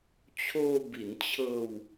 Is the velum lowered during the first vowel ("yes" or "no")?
no